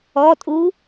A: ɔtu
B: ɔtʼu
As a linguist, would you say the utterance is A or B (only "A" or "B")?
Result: B